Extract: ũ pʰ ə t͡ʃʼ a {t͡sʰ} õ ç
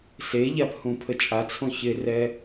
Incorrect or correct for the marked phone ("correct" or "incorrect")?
correct